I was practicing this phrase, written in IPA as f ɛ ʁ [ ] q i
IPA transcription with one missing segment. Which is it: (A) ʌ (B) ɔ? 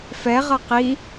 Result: A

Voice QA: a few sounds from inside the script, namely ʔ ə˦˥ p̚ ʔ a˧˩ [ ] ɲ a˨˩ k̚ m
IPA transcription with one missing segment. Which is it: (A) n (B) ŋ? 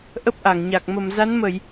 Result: B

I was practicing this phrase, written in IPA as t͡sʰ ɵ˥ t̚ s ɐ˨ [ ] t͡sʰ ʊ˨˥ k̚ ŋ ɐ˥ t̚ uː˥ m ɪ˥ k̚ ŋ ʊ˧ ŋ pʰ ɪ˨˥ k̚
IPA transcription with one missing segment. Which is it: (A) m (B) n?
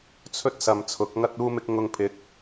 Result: A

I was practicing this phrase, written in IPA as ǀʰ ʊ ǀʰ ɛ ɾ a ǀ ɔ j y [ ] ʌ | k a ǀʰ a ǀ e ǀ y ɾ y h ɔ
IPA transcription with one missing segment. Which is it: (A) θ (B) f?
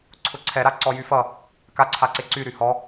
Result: B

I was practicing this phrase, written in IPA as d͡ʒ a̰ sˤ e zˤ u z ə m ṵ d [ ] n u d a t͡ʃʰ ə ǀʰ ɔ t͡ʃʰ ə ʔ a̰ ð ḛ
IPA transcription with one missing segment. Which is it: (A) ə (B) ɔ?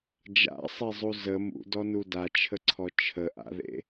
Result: B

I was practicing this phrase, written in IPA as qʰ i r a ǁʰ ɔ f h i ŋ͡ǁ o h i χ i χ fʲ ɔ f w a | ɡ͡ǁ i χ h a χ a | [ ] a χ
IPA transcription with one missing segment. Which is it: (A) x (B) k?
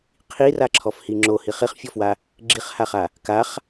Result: B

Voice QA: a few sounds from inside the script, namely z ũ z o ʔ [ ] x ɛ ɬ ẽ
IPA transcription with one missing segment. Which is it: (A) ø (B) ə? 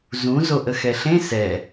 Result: B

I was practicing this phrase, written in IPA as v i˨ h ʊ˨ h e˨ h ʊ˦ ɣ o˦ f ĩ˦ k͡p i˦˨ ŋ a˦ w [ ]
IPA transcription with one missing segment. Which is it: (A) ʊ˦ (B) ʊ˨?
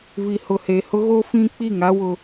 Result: A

